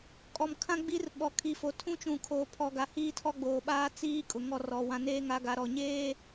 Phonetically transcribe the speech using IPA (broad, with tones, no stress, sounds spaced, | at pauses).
kʼ ɔ˨ m kʰ ã˦ ɡ͡b i˦ r ɓ ɔ˨ kʰ i˨ f o˨ tʰ ũ˦ t͡ʃ ũ˨ kʰ oː˨ pʰ ɔ˨ ɡ a˨ h iː˦ tʰ ɔ˦ ɡ͡b oː˨ ɓ aː˦ t͡s iː˦ kʼ ʊ˨ ŋ ɔ˦˨ r ɔ˨ w ã˨ n eː˦ ŋ a˨˦ ɡ a˨ ɾ ɔ˨ ɲ eː˦